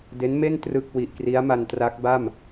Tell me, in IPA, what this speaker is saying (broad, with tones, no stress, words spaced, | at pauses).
de˦˥nme˥˩n trɯ˥˩k̚ wi˨˩ʔkri˦˥a̯ma˧n tra˦˥k̚ba˥˩m